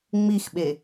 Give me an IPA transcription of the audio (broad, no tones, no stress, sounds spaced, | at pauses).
ŋ͡m i x ɓ e